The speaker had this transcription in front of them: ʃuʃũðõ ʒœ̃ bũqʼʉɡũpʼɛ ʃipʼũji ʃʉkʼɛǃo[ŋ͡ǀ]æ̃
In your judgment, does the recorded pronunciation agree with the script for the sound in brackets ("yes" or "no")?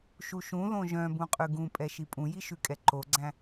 no